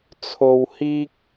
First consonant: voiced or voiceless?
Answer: voiceless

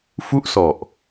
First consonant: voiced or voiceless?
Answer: voiceless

